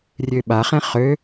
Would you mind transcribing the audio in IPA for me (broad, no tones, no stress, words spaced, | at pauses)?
rʲøɓaχɛ̃ χø